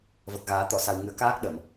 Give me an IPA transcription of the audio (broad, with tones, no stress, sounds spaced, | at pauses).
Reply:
v ə˨˩ k̚ ɣ aː˨˩˦ t̪ ɔ˨˩˨ s a˨˩ w ŋ ɨ˨˩˦ ə̯ k aː˦˥ k̚ ɗ ə˨˩˨ m